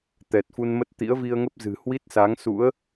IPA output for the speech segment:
t̪ ɛ˨˩ t̚ f u˧ n m ə˦˥ t̚ t̪ ḭ˧˥ ə̯ v i˧ ə̯ ŋ ə˦˥ p̚ z ɨ̤˨˩ h w i˦˥ t̚ s a˨˦ ŋ s ṵ˧˥ ə̯

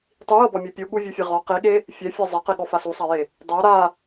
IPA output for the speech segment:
tˤ i j ɤ b ɔ mʲ e pʲ u ɠ u vʲ u fʲ e ʁ ɔ q i ɠ e | fʲ ɛ fʲ e zˤ ɛ q i ɠ ɔ f a s u sˤ a j e | dˤ ɤ ɾ a

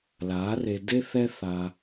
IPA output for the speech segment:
l a˨˦ r e˧ d e˦ θ ɛ˦ θ a˧

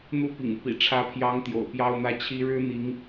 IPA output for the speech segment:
n̪ u˥˩ p ḭ˨˩ ŋ u˦ p ḭ˨˩ ʈ͡ʂʰ ä˧˥ pʰ j ɑ˧˥ ŋ t̪ j o̰˨˩ ʊ̯ p j ɑ˥ ʊ̯ n̪ ä˥˩ t͡ɕʰ i˥ ɻ ɻ̩˥ n̪ i˧˥ ŋ

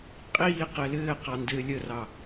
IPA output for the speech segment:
qʼ iː q ɛ l ɘː q ɑ n d ɘː lʲ ə r ɑ

